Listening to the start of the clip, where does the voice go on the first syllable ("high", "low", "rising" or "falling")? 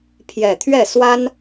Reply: low